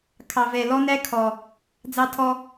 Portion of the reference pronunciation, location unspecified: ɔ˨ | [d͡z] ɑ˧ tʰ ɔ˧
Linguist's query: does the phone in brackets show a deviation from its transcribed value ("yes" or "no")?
no